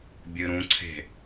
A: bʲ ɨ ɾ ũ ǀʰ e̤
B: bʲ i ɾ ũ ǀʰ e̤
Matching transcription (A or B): A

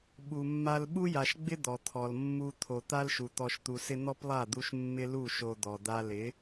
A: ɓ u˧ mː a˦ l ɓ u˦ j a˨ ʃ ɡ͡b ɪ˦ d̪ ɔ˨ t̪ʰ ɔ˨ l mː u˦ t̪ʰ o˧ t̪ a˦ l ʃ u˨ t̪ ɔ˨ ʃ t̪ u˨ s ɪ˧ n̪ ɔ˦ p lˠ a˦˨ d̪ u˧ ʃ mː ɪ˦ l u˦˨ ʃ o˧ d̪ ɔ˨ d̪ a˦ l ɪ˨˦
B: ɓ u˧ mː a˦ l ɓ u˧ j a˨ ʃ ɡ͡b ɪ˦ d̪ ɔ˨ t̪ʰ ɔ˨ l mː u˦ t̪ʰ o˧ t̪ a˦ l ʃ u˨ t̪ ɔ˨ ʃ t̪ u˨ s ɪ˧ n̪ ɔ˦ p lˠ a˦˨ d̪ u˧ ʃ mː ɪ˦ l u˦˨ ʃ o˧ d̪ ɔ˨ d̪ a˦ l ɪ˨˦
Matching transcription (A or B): A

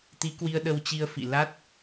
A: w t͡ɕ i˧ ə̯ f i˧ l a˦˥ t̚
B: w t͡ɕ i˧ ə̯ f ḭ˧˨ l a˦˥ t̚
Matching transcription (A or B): B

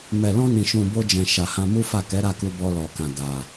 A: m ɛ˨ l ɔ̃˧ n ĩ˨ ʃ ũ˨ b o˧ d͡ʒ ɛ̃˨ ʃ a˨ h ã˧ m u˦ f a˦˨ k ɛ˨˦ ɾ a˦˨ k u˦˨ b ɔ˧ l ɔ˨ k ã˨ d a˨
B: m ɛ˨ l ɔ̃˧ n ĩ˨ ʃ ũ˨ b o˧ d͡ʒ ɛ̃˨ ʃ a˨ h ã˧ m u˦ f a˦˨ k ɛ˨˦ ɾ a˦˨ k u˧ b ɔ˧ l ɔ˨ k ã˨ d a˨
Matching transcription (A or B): B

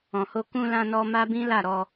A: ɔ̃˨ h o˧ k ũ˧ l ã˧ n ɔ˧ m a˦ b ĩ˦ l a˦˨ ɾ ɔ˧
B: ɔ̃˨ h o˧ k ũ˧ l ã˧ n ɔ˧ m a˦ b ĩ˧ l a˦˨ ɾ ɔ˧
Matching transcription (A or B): A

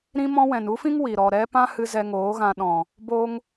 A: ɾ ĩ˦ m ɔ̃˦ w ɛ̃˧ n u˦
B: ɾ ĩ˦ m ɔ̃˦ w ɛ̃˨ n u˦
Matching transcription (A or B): B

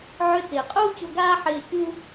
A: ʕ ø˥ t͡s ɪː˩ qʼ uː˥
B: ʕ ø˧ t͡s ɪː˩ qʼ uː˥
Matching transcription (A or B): B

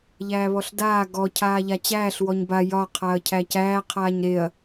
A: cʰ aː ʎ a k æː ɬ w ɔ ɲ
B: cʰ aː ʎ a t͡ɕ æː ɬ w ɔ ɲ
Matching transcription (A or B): B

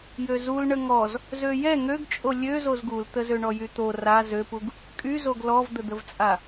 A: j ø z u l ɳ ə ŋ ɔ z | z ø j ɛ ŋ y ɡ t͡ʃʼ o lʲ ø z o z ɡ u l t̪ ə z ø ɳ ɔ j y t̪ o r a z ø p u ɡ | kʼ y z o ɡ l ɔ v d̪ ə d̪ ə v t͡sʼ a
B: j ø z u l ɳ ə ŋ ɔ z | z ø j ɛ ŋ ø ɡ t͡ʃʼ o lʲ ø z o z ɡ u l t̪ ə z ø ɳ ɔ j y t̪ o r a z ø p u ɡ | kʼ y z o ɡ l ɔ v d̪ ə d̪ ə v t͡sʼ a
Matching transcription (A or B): B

